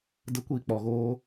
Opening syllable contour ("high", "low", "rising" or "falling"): high